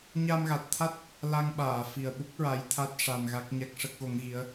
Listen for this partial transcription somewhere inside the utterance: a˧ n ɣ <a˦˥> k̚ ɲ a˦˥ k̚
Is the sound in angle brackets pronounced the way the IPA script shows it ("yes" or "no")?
yes